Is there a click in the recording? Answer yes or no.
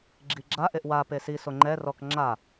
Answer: yes